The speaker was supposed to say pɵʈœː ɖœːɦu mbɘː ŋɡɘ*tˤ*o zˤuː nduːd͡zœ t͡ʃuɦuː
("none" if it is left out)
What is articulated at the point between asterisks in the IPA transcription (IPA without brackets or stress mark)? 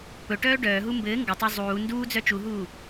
tˤ